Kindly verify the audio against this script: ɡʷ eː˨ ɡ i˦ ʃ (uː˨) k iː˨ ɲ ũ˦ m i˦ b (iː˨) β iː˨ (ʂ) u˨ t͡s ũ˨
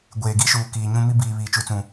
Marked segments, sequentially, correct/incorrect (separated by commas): correct, correct, incorrect